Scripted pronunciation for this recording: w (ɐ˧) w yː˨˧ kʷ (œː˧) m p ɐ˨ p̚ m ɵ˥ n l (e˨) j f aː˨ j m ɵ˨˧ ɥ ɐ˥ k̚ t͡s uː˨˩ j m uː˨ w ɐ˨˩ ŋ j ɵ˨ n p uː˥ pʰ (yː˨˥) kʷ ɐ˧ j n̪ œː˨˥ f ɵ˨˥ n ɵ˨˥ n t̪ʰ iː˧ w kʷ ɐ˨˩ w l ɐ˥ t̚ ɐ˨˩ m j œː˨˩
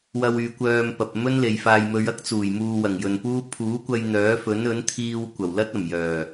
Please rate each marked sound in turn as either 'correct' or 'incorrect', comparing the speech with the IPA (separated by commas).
correct, correct, correct, incorrect